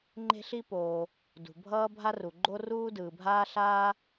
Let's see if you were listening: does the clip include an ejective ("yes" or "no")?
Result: no